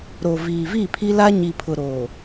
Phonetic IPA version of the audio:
ɾo˨viː˨vi˦˨ pʰi˦la˦ɲi˨ pʰʊ˨ɾoː˨

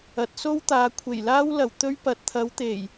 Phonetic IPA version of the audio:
ɐ˨˥t̚so˥wt̪aː˨˧ kʷʰe˨˩jlaː˥w lɐ˨˩wt̪ɵ˧ɥ pɐ˨t̚t̪ʰɐ˨˧wt̪e˨˩j

